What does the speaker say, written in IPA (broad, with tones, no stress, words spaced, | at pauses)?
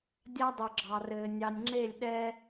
dʲa˦dˤɵ˨ɡ͡ǁɑ˨rɘː˨ nʲɑ˨nʲŋ͡ǁe˦˨lʲ ɗɛː˦